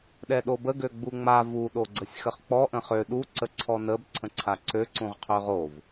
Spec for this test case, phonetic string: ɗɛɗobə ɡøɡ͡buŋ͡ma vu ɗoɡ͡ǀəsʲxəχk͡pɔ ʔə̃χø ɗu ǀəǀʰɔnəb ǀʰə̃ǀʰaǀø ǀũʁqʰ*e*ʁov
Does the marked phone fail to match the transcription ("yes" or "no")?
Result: yes